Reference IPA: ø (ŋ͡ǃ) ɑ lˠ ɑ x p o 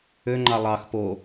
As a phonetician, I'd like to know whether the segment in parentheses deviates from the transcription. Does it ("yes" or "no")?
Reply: no